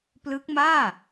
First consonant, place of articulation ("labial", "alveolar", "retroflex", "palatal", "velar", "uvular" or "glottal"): labial